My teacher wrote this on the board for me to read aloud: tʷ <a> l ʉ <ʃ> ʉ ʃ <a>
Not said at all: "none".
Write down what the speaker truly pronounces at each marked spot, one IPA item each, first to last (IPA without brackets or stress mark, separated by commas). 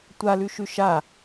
a, ʃ, a